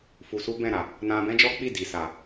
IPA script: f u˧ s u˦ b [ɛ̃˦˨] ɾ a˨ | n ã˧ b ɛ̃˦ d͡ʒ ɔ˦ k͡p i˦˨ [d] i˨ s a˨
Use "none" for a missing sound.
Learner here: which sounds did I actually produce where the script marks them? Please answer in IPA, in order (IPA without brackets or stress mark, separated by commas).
ɛ̃˦˨, d